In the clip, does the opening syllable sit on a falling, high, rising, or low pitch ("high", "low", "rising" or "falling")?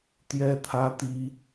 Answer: high